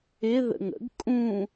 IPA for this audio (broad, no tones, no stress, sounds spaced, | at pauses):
ɪ ð ə̰ ŋ ə̰ ɡ kʼ ũ